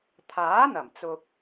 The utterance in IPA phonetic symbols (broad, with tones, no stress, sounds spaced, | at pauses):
t̪ʰ aː˨˥ n̪ ɐ˨˩ m t͡s ʊ˨ k̚